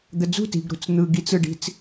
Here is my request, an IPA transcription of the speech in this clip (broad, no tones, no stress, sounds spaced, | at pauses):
d̪ ə d͡z ṳ t i̤ ɡ ɾ ṳ t͡s n̪ ɯ ɡ i t͡s ɯ ɖ i̤ t͡s